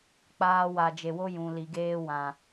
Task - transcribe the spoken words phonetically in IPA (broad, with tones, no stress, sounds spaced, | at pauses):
k͡p aː˦ w a˧ d͡ʒ e˧ w o˦ j ũ˨ l i˨ ɡ eː˧ w ã˨